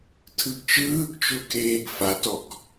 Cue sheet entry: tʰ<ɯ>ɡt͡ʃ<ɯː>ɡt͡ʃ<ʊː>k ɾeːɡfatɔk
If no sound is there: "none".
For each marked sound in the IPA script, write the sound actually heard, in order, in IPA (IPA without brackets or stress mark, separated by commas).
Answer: ɯ, ɯː, ʊː